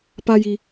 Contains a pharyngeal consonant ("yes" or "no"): no